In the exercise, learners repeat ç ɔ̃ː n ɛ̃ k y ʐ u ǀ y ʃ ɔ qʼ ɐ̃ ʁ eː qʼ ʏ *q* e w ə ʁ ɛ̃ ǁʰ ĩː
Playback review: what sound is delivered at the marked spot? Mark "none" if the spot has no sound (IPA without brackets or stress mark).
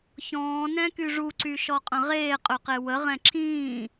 q